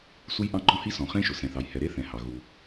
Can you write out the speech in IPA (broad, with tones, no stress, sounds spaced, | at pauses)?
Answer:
s u˥ j ʔ ɑ̃˥ ɡ͡ǃ ɔ̃˥ h i˥ s ɔ̃˩ χ ẽ˥ ʃ ʊ˩ s ɛ̃˩ θ ɑ˩ j h ɛ˩ ɾ e˥ θ ɛ̃˩ h ɑ˩ ɣ u˩